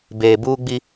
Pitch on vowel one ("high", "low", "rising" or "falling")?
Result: low